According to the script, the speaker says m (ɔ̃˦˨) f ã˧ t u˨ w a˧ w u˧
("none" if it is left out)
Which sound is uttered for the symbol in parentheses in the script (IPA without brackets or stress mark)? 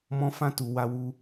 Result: ɔ̃˧